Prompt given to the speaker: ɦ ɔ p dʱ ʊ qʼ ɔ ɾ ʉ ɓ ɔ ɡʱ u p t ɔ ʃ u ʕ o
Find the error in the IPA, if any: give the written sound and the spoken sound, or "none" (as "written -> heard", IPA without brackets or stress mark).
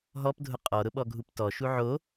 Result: ʉ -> ʊ